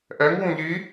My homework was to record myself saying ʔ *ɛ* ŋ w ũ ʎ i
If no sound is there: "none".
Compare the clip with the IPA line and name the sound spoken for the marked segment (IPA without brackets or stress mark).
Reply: ɛ